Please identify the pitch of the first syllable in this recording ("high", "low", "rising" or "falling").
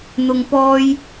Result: low